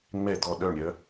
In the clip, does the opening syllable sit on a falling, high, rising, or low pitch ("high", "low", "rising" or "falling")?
falling